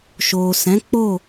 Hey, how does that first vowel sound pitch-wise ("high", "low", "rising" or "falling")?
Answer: low